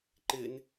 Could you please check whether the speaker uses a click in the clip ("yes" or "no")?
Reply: yes